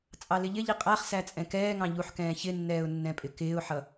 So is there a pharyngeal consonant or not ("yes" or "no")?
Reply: yes